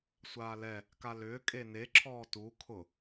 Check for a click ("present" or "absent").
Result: present